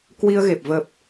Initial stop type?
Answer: plain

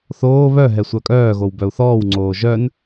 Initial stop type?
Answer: ejective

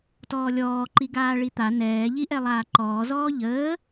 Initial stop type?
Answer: plain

